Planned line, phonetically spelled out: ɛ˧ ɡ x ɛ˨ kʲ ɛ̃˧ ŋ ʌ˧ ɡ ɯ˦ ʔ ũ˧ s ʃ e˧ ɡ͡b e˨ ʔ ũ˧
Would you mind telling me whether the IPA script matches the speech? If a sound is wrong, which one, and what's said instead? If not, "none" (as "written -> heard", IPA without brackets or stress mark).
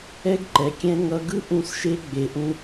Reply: x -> ǃ